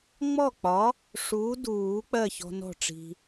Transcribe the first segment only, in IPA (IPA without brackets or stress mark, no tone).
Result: ŋ͡m